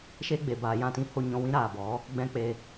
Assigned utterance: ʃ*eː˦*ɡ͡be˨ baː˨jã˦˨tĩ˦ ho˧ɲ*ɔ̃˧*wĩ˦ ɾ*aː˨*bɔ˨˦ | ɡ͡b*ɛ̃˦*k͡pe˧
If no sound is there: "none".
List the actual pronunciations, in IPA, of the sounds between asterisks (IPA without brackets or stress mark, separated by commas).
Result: e˦, ɔ̃˧, aː˨, ɛ̃˦